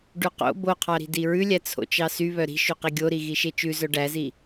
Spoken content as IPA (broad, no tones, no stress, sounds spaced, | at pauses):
ɖ ʉ q o̰ b o qʰ ɑ ɾ i̤ d i ɹ ʉ lʲ æ t͡sʰ o̰ t͡ʃ ɑ s y β œ ɾ i̤ ʃ ʉ q i ɡʲ o ɾ i ɣ i ʃ e t͡ʃ ʉ z œ ɖ æ z i